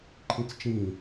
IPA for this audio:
ǃʰ ĩ t͡s t͡ʃ ĩ

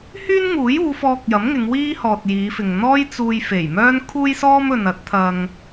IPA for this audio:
h yː˥ n ŋ uː˨˥ j uː˨˧ f ɔː˧ k̚ j ɐ˨˥ m ŋ ɪ˨˧ ŋ w iː˥ h ɔː˨ t̚ j iː˨˧ f ɪ˨ ŋ n̪ ɔː˥ j t͡s uː˧ j f e˨˩ j m œː˥ n kʰ uː˥ j s ɔː˥ m ɵ˨ n ɐ˨˥ t̚ t̪ʰ ɐ˧ ŋ

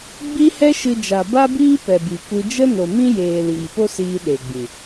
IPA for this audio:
ɡ͡b i˦ h ɛ˦ ʃ ɨ˧ d͡ʒ a˨ b a˦ b iː˦ p ɛ˨ b i˨ kʷ ɨ˧ d͡ʒ ə˦ n o˨ m ĩ˦ j eː˨ l iː˨ p o˦ s iː˧ ɗ e˨ ɡ͡b ĩ˨

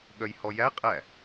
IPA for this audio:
ɠ œ j h ɔ j æ qʼ æ

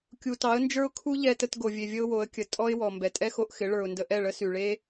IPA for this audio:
kʲ u˨ t ɑ˨˦ ə̯ n d͡ʒ ə˞˦ ʊ̯ kʰ u˦ ʎ ɛ˧ t ə˧ t ɡ o˨ vʲ e˨ vʲ ə˧ ʊ̯ w o˨˦ ə̯ kʲ ə˨ tʼ ɔ˦ ɪ̯ w ɔ˨ m b ɛ˨ tʼ ɛ˦ x o˧ ʔ x ɪ˨˦ ɭ ə˞˨ ʊ̯ n d ə˧ ʔ ɛ˦˨ ɭ ə˦ s y˨ ɭ e˦

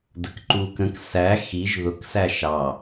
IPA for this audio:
d ə k ǃ u k ə̃ k s æ x i ʒ ð ʊ k s æ ʃ ɑ

